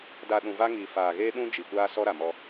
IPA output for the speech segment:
d a˨ ɗ ũ˨ v a˦ ŋ iː˨ f aː˨ ɣ eː˦ ɗ ũ˦ d͡ʒ i˨ kʷ aː˦ s ɔ˦ ɾ a˨ m ɔ˦

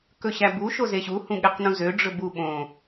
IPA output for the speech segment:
k ɵ ɕ æ b u ʃ o z e ɕ u h ũ ɠ e q n ũ z ø ɖ͡ʐ ɵ b u ɓ õ

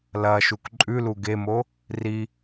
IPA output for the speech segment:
l ɐ ʃ u k ǃʼ ʉ l u ɡ e m o | r i

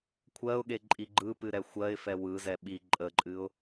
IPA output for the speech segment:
kʷʰ ɜ ʊ̯ ɠ e ǃʼ i ɡ͡ǃ ɯ p ɨ ɾ ɛ xʷ ɜ ɪ̯ f ɛ w ɯ z ɛ ɓ i ǃʼ ə ǃʼ ɨ ʊ̯

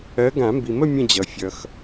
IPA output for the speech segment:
ɜ˨˦ ɡ ã˨˩˦ m b i˨ m ə˥˨ mʲ ə̃˥˨ d͡ʑ ʌ˨ fʲ ʌ˨ x

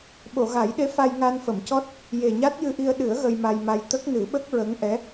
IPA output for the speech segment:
ɓ o˨˩˨ ɣ a˨˩˦ j ɗ e˧˥ f a˧ j ŋ a˧ n f ə˨˩˨ m c ɔ˦˥ t̚ | j e˨˩ ɲ a˦˥ t̚ j ɨ˧ ʔ i˧ ə̯ ɗ ɨ˨˩˦ ə̯ ɣ ə˧ j m a˧ j m a˧ j t̪ ə˦˥ k̚ n ɨ˨˩˦ ɓ ə˦˥ k̚ ɹ ə˧˥ ŋ ʔ ɛ˧˥

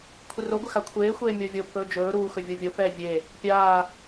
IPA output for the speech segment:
kʷʰ ɪ r o ɡʷ ɪ x a kʷʰ eː xʷ eː mʲ o vʲ o pː ɵː d͡ʒ ɵː ɾ uː x ɵ vʲ o vʲ o f ɛː vʲ e | pʲ aː

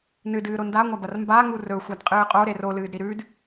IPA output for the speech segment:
n ɨ d ɨː ɾ o n d a ŋʷ a b ɐ r m b a ŋ u r ɵ xʷ a d qʼ ɨː qʼ o ɾ e r o l ɨː d ɾ i ɾ ʉ d

